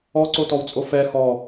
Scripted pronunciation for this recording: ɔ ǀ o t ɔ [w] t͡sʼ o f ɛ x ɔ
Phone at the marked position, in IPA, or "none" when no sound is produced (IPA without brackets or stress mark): w